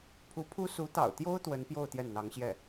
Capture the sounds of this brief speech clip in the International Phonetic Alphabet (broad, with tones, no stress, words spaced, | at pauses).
pʰu˧˥pʰu˥ su˧˥t̪ɑ̰˨˩ʊ̯t̪jo˥ʊ̯ t̪wə˧˥npjo˥˧ʊ̯ t̪jɛ˥˩nn̪ɑ˧˥ŋɕjɛ˥˩